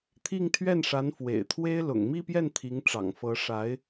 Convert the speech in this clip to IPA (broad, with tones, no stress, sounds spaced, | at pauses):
t̪ʰ i˥˧ ŋ t̪ʰ ɥ ɛ˥˩ n ʂ a˧˥ n f w ḛ˨˩ ɪ̯ t̪ʰ w e˥ ɪ̯ l ʊ̰˨˩ ŋ m i˥˧ p j ɛ˥˩ n t̪ʰ i˧˥ ŋ ʈ͡ʂ ɑ̰˨˩ ŋ f ɤ˧˥ ʂ a˧˥ ɪ̯